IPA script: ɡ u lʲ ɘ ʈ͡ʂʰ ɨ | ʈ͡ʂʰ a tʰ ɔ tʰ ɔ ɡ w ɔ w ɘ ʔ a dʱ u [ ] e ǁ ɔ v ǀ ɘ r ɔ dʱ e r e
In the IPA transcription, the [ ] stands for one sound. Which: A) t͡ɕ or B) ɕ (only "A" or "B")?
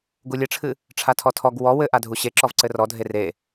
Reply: B